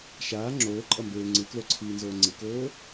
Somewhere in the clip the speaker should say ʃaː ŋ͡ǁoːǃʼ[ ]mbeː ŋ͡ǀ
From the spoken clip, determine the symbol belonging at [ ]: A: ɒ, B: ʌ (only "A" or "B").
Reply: B